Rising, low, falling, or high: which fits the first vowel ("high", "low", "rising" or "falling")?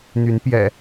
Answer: rising